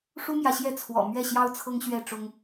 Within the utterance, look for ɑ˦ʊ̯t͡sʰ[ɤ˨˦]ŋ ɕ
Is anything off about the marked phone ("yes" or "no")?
yes